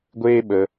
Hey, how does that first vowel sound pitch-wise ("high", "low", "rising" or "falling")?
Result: high